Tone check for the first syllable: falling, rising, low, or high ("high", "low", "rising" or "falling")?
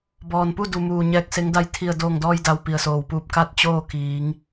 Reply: low